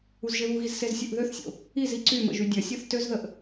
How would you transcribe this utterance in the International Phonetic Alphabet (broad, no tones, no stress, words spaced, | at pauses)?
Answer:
uzʒeβuɣiz sezsʲoʔðøθsʲo̰ | iz iǀymə̰ ʒydʲɐsʲoθ tøzðəʔ